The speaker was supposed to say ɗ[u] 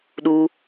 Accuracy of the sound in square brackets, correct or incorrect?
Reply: correct